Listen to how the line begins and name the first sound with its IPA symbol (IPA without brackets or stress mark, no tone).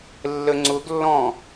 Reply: lː